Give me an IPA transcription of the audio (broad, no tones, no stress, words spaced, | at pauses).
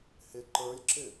hɪ ǃə˞lʲǁɪ